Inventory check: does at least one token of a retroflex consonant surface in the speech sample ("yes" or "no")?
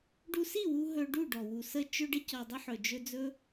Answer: yes